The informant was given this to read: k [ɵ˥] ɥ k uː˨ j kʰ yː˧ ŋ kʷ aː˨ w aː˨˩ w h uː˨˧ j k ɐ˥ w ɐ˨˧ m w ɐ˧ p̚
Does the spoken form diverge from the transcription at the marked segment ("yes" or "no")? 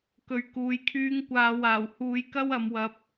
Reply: yes